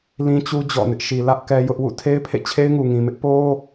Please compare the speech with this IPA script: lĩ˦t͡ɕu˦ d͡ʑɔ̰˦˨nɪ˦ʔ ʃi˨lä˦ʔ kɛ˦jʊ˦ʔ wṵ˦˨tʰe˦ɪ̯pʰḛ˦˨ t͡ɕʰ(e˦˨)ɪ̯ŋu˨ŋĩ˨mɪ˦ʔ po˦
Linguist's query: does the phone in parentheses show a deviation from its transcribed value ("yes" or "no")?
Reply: yes